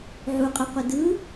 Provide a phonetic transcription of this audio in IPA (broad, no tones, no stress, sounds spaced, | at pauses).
ʕ u qʼ ɯ qʷ e d ɯ